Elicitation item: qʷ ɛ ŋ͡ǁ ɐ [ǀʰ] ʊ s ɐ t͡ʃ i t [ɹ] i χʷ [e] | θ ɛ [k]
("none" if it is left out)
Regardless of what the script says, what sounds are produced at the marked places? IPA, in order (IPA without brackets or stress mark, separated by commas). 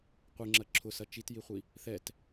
ǁʰ, j, i, t